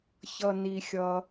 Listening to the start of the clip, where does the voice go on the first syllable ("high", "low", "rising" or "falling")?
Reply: low